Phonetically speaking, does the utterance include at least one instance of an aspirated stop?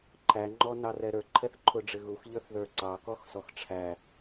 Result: yes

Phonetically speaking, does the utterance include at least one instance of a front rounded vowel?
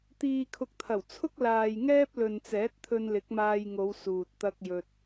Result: no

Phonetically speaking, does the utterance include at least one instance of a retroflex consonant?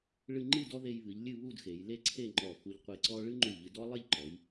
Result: yes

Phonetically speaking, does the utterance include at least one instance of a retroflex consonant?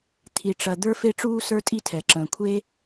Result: yes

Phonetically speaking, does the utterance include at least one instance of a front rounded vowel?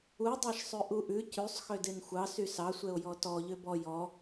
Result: yes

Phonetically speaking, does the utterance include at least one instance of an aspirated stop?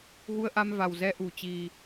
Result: no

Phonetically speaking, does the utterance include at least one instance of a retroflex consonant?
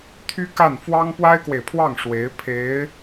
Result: yes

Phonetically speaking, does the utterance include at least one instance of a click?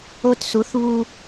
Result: no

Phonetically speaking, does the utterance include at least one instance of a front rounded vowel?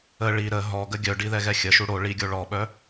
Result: yes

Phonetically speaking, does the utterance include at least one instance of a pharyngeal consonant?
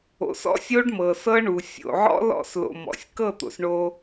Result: yes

